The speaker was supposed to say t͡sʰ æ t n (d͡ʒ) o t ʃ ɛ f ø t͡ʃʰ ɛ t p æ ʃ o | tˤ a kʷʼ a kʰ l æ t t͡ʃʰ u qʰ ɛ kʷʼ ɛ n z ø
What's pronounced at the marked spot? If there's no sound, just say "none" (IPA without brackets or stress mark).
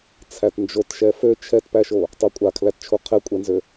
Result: d͡ʒ